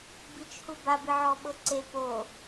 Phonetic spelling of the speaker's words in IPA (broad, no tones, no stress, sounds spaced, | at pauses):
b i t͡ʃ h u b a b i ʕ ɔ ɓ ɤ ǀ e p o